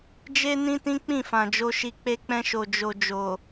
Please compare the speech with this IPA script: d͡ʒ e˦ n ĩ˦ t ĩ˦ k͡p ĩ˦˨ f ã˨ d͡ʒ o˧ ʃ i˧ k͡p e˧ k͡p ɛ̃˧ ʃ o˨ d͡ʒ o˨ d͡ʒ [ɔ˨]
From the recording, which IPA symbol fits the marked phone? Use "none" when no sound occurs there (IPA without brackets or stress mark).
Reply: o˨